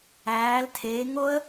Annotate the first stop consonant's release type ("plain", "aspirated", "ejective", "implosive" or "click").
aspirated